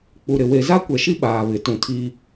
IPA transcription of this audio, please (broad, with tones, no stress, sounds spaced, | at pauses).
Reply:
k͡p u˨ ɾ ɪ˨ w e˨ z a˦ kʷ ɛ˨ ʃ i˦ ɓ aː˨ β ɪ˨˦ t ũ˨ tʰ i˦